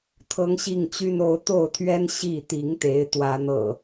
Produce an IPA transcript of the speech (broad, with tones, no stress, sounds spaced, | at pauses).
t̪ʰ ɤ˦ ŋ ɕ i˥˨ ŋ t͡ɕ y˦ n o˨˦ ʊ̯ t̪ o˥˨ ʊ̯ t̪ʰ ɥ ɛ˦ n ɕ i˥˨ t̪ i˨˦ ŋ t̪ e˨˦ ɪ̯ t̪ w ä˨˦ n̪ ɤ̰˨˩